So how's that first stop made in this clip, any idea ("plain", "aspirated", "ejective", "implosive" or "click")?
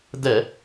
plain